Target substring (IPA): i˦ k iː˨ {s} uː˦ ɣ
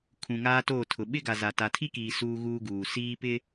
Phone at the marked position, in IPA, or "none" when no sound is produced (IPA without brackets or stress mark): s